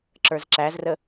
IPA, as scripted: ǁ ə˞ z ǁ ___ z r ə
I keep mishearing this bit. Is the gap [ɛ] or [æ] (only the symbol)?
æ